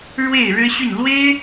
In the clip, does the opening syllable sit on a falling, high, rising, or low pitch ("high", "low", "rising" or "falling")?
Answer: falling